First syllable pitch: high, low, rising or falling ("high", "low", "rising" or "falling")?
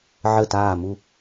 falling